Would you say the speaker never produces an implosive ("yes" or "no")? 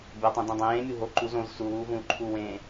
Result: yes